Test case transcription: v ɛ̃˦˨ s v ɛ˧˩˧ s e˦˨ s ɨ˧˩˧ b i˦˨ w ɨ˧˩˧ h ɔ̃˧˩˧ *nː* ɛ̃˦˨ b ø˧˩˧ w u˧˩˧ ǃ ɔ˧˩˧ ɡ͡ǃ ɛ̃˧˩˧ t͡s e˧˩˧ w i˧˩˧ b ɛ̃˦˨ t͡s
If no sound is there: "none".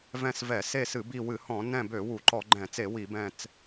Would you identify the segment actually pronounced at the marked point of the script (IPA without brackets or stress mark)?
n